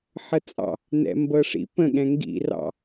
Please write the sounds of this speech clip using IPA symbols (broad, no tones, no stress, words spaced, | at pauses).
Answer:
ħət͡sʼɑ̰ | nɛ̰mbɤʂḭ pə̃ ɠɛ̃ŋɡḭ rɑ̰